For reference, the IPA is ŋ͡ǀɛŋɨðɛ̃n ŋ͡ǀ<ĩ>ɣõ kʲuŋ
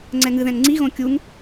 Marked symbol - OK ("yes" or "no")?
no